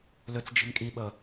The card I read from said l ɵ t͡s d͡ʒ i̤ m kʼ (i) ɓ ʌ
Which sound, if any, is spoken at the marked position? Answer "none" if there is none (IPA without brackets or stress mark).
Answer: i